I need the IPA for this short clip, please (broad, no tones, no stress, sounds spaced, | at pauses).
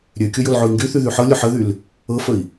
ɾʲ ø kʲ ʊ j ʊ l ʕ ʊ i̯ ŋ ɡ y θ y ð y ħ ɤ lʲ ʊ ħ ə ð y l | ɤ f ə i̯